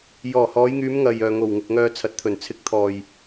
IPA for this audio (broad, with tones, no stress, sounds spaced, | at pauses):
j ɔː˨˩ h ɔː˨˧ j ŋ yː˨˧ m ŋ ɐ˨ j œː˨ ŋ o˨˩ w ŋ ɪ˨ k̚ ŋ œː˧ t͡sʰ ɐ˨˥ t̚ t̪ʰ ɵ˨˩ n t͡sʰ ɪ˨ k̚ t̪ʰ ɔː˨ j